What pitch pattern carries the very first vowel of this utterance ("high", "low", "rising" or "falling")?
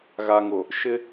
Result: low